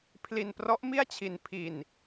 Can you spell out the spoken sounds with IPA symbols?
pʰli˧nprɔ˦˥ʔmi˥˩a̯t͡ɕʰi˧n pʰi˧n

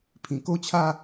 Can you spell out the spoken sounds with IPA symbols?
pʰĩ˨˩ko˦t͡ɕʰa˦

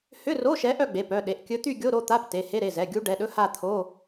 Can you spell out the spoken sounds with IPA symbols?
hʏ˧˥˧ro˧˥˧ ʃɛ˧˥ʔœ˥˧ ɡ͡be˩˧˩pœ˩˧˩ɗe˩˧˩ʔ kʲɵ˧˥t̪y˥˧ɡʲo˧˥˧ ɾo˥˧t̪a˧˥˧p te˩˧˩he˧˥˧ɾe˩˧˩zɛ˩˧˩ ɡʲu˧˥ ɖɛ˩˧˩ɗɵ˧˥˧ha˥˧t̪ʰo˧˥˧

